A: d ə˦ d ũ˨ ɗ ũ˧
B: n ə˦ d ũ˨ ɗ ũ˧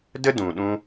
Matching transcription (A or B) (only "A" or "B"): A